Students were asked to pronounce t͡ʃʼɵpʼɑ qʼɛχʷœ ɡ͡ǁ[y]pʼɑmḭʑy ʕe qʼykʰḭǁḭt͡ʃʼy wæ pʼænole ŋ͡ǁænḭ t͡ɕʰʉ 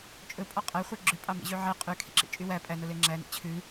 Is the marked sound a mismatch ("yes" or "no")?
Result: yes